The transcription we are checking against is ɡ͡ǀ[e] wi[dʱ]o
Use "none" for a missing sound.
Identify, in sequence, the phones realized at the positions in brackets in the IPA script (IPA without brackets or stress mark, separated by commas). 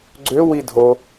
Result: ø, dʱ